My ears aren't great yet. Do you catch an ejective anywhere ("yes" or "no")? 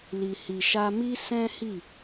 no